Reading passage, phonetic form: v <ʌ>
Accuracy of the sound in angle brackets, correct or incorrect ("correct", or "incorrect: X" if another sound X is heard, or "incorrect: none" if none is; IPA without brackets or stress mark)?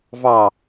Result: incorrect: ɑ